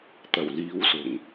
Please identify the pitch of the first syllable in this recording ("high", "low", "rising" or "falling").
low